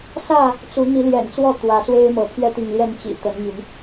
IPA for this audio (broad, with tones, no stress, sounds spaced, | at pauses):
s ä˥˨ | t͡s u˨˦ n̪ i˨˦ l j ɛ̰˨˩ n t͡s w ɔ˥˨ t̪ w ä˨˦ s w e˦ ɪ̯ m ɤ˨˦ pʰ ɥ ɛ˦ t̪ i˨ ŋ l j ɛ˥˨ n t͡ɕ ḭ˨˩ t̪ ə˨˦ n m y˨˦ n